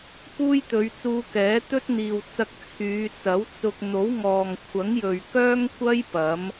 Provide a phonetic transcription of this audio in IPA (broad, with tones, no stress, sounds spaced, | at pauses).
k uː˥ j t̪ ɵ˨˧ ɥ t͡s uː˧ k ɛː˨˥ t̪ ɵ˥ t̚ n̪ iː˨ w t͡s ɐ˥ k̚ t͡sʰ yː˨˧ t͡s ɐ˨˥ w t͡s ʊ˧ k̚ n̪ o˨˥ w ŋ ɔː˨ ŋ kʷʰ ɐ˨˥ ŋ j ɵ˨ ɥ k œː˥ ŋ kʷ ɐ˥ j p ɐ˨˥ m